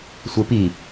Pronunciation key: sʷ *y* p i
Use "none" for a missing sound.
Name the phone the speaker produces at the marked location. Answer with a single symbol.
e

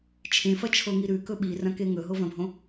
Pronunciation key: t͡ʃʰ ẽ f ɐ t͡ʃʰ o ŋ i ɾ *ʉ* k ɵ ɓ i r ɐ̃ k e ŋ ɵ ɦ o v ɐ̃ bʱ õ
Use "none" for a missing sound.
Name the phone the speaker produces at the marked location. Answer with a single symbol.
ʉ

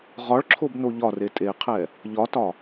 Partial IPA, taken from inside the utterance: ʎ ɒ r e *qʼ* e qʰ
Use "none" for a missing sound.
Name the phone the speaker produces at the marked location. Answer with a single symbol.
tʼ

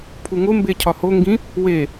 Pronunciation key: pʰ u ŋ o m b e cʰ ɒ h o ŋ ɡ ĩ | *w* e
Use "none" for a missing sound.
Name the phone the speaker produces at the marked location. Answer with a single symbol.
w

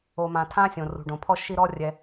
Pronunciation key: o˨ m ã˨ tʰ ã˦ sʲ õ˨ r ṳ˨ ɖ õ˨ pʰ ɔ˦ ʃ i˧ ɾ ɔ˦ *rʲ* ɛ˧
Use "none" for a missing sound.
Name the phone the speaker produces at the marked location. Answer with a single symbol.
rʲ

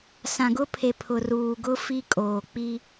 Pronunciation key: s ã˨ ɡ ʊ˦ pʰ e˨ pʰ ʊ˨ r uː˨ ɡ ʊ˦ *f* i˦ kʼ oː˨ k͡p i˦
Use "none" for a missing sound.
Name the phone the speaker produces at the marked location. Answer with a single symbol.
f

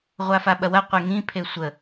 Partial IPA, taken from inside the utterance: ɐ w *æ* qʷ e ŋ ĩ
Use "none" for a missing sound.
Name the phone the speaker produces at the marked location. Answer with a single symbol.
ɐ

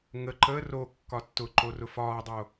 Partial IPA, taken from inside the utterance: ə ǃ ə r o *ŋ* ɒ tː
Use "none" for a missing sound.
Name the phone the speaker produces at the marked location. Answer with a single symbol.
kː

